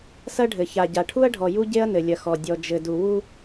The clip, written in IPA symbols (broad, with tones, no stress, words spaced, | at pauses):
sɐ˦ɖʱɘ˨ça˨ ɟa˨ʈʰu˦ɐ̯ɖʱɔ˨ju˦ ɟe˦ɐ̯nɘ˨lʲɐ˨xɔ˨ dʲɔ˨d͡ʒɘ˨du˨ wu˦